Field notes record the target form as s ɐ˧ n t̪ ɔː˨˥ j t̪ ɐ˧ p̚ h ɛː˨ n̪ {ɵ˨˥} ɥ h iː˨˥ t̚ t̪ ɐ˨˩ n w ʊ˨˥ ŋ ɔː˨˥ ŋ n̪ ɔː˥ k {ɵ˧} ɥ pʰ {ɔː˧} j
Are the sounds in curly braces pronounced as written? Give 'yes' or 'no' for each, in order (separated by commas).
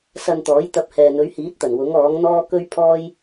yes, no, no